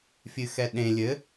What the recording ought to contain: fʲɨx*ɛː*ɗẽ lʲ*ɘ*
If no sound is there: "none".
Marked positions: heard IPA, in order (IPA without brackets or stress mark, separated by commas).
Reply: ɛ, ɘ